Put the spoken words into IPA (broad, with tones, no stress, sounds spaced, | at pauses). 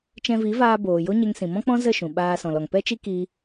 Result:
t͡ʃ ɛ̃˧ v i˨˦ v aː˧ b oː˨ j o˦ ɲ e˧ ŋ s ĩ˨ m ɔ̃˦ k͡p ɔ̃˦ z ə˦˨ ʃ ũ˨ ɓ aː˧ s ɔ̃˨ l ɔ˨ ŋ p ɛ˦ t͡ʃ i˦ k i˦